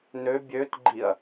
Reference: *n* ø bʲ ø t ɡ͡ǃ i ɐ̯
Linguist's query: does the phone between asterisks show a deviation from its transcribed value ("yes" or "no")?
no